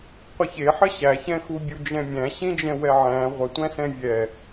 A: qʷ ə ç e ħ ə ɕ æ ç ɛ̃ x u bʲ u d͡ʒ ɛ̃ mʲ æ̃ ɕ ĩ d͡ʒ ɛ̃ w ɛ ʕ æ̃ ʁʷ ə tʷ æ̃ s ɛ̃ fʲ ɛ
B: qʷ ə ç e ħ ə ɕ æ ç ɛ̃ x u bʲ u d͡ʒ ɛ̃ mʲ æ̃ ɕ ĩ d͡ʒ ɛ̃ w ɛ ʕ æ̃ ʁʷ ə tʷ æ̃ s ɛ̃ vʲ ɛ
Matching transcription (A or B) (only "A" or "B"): B